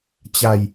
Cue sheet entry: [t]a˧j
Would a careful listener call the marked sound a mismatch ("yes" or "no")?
yes